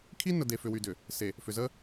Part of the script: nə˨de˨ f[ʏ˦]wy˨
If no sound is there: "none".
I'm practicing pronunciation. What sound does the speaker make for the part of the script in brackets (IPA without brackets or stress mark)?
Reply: ʏ˨